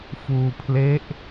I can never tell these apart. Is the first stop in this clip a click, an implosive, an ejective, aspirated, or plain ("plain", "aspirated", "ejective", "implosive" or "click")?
aspirated